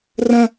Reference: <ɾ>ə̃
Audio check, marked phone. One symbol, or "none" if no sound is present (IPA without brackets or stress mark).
r